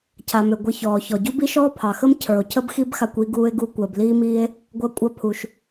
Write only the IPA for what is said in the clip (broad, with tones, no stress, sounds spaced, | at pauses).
cʰ a˨ m ø˨ ɡʷ ə˧ ç ɔː˨ ç ɔ˨ ɟ u˦ b i˦ ʃ ɔː˦ pʰ ɑ˨ x ə˦ m cʰ ə˞˨ o̯ cʰ ə˦ b x i˦ b x a˧ kʷ i˧ ɡ uː˧ e̯ ɡ u˧ kʷ əː˨ b l iː˦ m iː˦ e̯ | ɡʷ ɐ˧ kʷʼ ɐ˧ pʰ u˨ ʃ